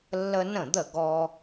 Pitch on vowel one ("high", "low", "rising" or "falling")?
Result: high